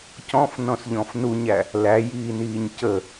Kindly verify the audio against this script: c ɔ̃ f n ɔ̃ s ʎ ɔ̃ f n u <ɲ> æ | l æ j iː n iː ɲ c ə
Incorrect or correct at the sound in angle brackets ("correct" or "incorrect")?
correct